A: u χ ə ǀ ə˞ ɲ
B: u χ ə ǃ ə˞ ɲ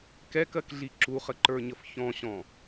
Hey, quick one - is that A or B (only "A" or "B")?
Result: B